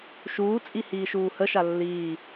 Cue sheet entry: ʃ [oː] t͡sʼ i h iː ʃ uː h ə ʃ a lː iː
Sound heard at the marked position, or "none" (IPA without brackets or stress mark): uː